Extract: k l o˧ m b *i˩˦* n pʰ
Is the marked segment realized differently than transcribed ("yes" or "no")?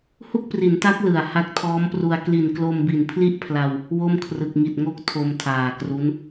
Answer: yes